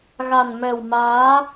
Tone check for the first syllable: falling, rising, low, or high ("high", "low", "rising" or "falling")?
low